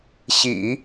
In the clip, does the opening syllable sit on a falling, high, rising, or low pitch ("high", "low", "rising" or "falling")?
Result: low